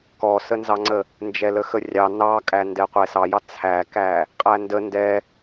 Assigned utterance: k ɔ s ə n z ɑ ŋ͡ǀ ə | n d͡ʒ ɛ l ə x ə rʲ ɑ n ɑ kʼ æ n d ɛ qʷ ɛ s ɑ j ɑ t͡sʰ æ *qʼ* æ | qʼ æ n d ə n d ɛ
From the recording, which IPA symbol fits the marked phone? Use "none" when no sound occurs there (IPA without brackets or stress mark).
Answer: k